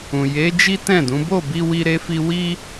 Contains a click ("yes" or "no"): no